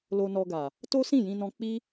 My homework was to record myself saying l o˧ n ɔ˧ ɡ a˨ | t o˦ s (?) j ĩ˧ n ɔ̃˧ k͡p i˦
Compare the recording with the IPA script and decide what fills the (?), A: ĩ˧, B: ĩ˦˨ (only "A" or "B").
B